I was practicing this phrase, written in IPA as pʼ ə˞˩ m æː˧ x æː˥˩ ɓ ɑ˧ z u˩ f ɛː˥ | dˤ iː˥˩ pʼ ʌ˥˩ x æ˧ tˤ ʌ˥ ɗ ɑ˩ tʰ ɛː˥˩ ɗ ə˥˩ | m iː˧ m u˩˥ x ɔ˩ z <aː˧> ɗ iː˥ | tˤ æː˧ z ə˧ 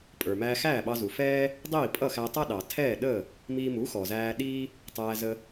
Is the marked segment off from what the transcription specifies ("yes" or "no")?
yes